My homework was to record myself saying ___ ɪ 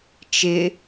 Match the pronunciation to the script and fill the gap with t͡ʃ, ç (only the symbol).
t͡ʃ